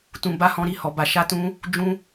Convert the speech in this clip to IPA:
t ũ˧ b a˦ h ɔ̃˦ ɾ i˧ h ɔ˧ b a˧ ʃ a˦ t ũ˦ | d͡ʒ ũ˦

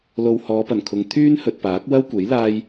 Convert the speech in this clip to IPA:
l o˧ w h ɔː˨˧ p ɐ˨˩ n kʰ ʊ˨˧ ŋ t̪ʰ yː˥ n h ɵ˨ t̚ p aː˨˥ k̚ w ɐ˥ w kʷ e˨˥ j l aː˥ j

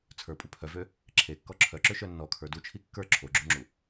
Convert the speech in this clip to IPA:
t͡sʰ ə˞ pʼ u pʰ œ v ø | ǁʰ e kː ɔ ǁʰ œ ǁ ø ʃ œ nː ɔ kʰ ə˞ d u t͡ʃʰ i kː ə˞ ǁʰ o ɡ͡ǁ u ŋ͡ǁ u

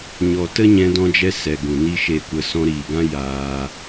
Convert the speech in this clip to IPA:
ɲ ɔ˨ t ə˦ ɲ ɛ̃˧ d ɔ̃˧ d͡ʒ ɛ˧ s ɛ˨ ɡ ũ˨ n i˧ ʃ e˨ kʷ ə˨ s ɔ̃˧ ɾ iː˨ ɡ ã˦ j aː˧

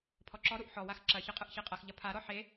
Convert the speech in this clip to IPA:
pʰ ɔ ǁ ɔ ɾ u ʔ ħ ɔ w a x ǁ ɐ ç ɐ qʼ ɯ ʔ ç e qʼ ɐ x ʎ ɐ pʰ a ɾ ɔ ħ e

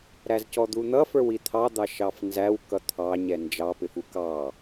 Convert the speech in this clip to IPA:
ɾ æ z c ɔ d̪ u n̪ ʌ f ə˞ w i t̪ʰ ɑ d̪ ɑ ʃ ɑ f n z æ w k ʌ t̪ʰ ɑ ɲ ɛ n d͡ʒ ɑ p ɪ f u k ɑ

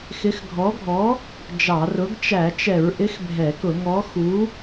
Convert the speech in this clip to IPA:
x ɪ˨˥ x ɡʱ ɔ˨˥ ɡʱ ɔ˨˥ | d͡ʒ ɑ˧˩˧ r ʊ˨˥ ɡ t͡ʃ æ˧˩˧ t͡ʃ ɛ˧˩˧ ɹ ʔ ɪ˨˥ x bʱ ɛ˧˩˧ k ʊ˧˩˧ ŋ ɔ˨˥ x u˨˥

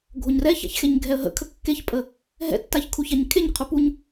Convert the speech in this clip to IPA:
ɡʱ o ɲ r ɛ ç a̰ ç x e ɲ ɡʱ ɛ ə̯ ɦ ə̰ kʰ ə kː e ç pʼ ə | ɦ ɛ̰ tː a ç kʰ u ç a ɲ kʰ e ɲ qʰ u p u ɲ

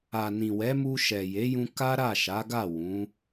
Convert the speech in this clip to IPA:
a˨ n ĩ˨ w ɛ˨˦ m u˧ ʃ ɛ˨ j e˨˦ j ũ˧ k a˦ ɾ a˦˨ ʃ a˨˦ ɡ a˦˨ w ũ˨˦

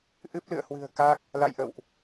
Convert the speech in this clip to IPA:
ʔ ɨ˦˥ p̚ l ɨ̰˧˨ ə̯ h w ɨ̤˨˩ ə̯ k a˦˥ k̚ | l a̰˧˨ j ʔ ə̰˧˨ w ʔ

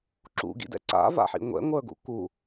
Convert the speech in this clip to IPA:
ǁ ṵ ɡ ḭ d ɛ̰ ǀ a̰ v a̰ ħ ḭ ŋʷ ɛ̰ ŋʷ ə˞ ɡ ṵ k u

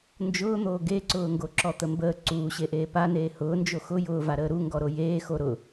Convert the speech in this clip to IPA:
n d͡ʒ ʊː n̪ oː ɡ e ǀ ʊː ŋ ɡ o ǁ ɔ t̪ ə m b əː ǀ uː ɕ e ʔ eː p a n eː h ʊː n d͡ʒ o x ʊ j ʊː v a ɾ əː ɾ u ŋ ɡ ɔ ɾ o j eː x o ɾ ʊ

